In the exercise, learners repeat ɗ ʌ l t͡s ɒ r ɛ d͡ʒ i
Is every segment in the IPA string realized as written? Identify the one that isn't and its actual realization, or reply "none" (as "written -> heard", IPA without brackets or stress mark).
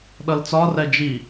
none